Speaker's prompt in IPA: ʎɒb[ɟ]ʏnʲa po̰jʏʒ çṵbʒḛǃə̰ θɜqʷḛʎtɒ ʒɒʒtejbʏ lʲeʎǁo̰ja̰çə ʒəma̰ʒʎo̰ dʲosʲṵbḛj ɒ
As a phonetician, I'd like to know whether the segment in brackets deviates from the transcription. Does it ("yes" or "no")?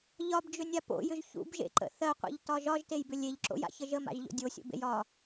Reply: yes